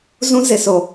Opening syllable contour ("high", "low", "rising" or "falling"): high